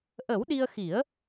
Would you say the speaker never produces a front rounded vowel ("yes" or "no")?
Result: yes